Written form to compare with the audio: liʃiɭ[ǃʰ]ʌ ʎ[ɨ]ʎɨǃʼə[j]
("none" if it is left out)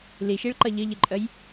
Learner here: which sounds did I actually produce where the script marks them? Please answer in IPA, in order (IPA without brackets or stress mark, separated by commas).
ǃ, ɨ, j